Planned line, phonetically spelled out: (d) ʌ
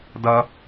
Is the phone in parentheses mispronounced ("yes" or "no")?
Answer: no